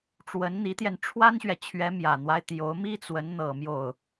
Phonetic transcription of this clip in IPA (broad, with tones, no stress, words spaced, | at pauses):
ʈ͡ʂwə˧˥nn̪i˧˥t̪jɛ˧n ʈ͡ʂʰwa˥nɕɥɛ˨t͡ɕʰɥɛ˧˥ mjä˨˩n̪wa˦ɪ̯ t̪jo˧˥ʊ̯mi˥ t͡swə˧˥n n̪ɤ˨˩ mjo˥˩ʊ̯